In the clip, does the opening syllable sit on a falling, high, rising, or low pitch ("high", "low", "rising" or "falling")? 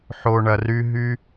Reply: low